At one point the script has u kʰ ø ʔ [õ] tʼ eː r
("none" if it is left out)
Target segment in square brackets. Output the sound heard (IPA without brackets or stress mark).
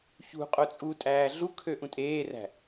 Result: ũ